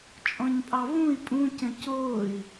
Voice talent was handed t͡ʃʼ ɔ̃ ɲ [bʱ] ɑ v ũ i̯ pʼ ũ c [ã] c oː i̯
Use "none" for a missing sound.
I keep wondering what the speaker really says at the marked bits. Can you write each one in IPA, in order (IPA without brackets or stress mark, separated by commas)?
pʼ, ə̃